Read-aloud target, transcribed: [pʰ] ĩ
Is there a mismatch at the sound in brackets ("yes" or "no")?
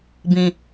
yes